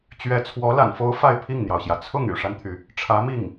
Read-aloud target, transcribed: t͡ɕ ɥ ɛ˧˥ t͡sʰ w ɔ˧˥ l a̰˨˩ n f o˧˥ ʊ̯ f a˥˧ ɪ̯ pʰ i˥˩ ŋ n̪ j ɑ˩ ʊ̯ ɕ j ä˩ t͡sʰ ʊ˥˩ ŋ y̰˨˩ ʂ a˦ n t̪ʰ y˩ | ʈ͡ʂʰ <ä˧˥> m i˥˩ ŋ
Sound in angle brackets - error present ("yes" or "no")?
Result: no